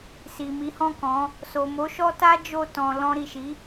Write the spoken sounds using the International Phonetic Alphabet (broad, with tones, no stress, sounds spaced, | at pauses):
s i˨ m i˨˦ h ɔ̃˦˨ k ɔ̃˨˦ | s o˨ m o˨˦ ʃ ɔ˦ t a˦ d͡ʒ o˦˨ t ɔ̃˧ l ɔ̃˧ ɾ i˨ ʃ i˨˦